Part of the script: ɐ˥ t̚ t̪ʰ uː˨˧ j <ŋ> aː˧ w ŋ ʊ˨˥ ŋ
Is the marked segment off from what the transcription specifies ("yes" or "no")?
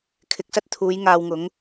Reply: no